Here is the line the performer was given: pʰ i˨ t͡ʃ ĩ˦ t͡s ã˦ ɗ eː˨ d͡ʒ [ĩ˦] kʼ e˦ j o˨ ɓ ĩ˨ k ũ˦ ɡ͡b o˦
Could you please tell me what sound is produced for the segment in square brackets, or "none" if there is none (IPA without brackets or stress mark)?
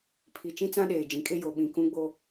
ĩ˨